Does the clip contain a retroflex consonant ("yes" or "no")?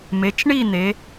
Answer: yes